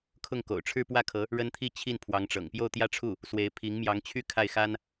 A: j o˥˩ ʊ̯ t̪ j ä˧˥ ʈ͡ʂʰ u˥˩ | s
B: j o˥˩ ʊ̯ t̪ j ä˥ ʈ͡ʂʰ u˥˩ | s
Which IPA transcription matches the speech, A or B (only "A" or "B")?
B